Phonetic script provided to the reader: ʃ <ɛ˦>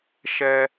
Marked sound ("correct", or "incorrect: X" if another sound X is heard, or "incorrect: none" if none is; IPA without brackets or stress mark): correct